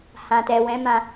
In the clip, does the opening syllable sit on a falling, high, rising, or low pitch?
low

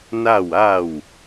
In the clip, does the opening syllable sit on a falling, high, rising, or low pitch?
falling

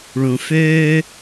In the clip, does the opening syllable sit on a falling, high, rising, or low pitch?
low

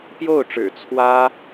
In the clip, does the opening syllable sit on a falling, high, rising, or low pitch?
falling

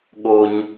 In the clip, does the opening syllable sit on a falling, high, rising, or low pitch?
low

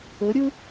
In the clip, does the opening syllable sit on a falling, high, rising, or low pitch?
rising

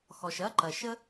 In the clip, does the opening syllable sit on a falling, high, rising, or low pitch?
low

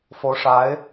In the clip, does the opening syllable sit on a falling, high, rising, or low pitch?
rising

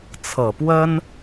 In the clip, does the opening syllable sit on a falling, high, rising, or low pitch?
low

